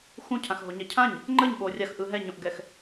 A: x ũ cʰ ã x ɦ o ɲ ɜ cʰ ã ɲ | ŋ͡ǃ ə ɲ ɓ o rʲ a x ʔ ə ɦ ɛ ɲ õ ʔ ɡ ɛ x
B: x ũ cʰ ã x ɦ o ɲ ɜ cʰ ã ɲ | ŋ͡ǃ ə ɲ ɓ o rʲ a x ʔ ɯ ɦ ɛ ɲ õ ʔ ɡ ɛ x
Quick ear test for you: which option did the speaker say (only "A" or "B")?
B